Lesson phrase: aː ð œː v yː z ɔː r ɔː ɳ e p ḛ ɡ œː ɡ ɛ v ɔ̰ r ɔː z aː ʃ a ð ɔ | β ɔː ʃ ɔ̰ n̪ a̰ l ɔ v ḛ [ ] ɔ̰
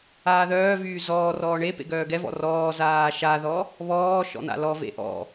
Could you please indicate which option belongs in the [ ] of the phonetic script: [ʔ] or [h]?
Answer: ʔ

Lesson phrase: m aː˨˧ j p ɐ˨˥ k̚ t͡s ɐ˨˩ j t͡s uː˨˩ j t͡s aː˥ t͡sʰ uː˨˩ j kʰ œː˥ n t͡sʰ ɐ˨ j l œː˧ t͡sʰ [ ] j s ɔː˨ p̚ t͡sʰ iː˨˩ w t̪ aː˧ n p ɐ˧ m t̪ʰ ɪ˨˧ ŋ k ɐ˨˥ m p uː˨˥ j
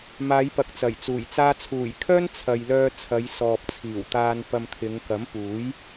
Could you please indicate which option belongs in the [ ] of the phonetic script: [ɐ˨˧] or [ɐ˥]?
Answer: ɐ˨˧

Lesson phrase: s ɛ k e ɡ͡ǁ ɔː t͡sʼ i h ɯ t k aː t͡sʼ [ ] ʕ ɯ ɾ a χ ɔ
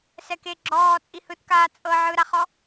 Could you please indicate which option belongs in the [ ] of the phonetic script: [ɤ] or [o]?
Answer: ɤ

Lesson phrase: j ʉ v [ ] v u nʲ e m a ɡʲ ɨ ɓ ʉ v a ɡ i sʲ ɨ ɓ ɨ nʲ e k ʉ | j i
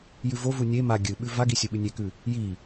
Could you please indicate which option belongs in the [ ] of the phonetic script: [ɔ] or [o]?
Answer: o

